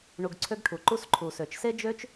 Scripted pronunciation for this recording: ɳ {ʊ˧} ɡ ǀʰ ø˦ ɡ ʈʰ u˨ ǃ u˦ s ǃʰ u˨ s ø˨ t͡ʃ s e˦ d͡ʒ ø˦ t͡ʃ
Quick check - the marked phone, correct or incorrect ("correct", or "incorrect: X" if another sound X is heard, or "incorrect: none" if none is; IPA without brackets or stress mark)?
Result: incorrect: u˧